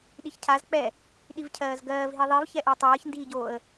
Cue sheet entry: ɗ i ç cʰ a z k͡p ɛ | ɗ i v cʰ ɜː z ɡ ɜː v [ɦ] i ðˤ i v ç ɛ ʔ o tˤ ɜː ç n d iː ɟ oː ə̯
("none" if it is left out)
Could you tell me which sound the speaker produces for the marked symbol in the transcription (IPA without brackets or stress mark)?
ɦ